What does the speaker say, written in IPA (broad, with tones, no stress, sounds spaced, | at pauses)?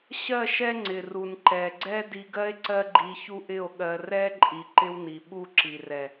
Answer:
ɕ ɜ˦˨ ʃ ɛ˦ ŋ͡ǀ ɪ˨ r u˨ n ǃ ɛ˨ ɡ͡ǀ ɛ˦ d i˧ ɡ ɜ˦ e̯ ǀ ɜ˦ ɡ͡ǃ i˧ ç u˦ ʔ ɪ˦˨ o̯ ɠ ɜ˧ r ɛ˦ ǃʼ i˨ ǃ ɪ˦ w n i˨ ɓ u˦ ǁ i˨ r ɛ˨